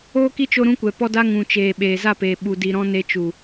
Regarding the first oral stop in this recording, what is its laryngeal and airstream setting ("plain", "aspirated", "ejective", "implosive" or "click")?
plain